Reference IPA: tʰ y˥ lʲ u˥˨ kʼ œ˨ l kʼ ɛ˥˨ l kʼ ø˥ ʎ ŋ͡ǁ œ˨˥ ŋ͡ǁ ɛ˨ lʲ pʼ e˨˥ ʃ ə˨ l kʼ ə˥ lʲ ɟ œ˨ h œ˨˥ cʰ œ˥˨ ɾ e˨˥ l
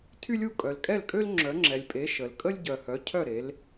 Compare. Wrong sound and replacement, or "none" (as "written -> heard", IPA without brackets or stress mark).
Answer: ʎ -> l